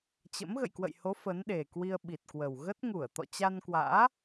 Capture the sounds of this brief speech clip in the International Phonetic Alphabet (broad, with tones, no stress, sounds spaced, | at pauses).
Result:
t͡ɕ ə̰˧˥ m ɣ ə̰˧˨ j k w ə̰˧˨ j h o˨˦ f ə˨˦ n ɗ e˨˩ k w i˧ ə̯ ɓ i˨˩ t̚ k w ə˨˩ w ɣ ə˦˥ t̚ ŋ u˧˩ ə̯ t̪ ɔ̰˧˨ t͡ɕ a˧ n k w a̰ː˧˥